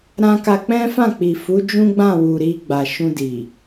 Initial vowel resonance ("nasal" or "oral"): nasal